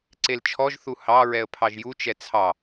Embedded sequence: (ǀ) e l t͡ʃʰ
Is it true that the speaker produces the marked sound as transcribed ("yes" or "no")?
yes